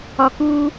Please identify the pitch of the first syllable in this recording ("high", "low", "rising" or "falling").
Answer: low